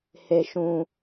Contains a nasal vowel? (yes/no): yes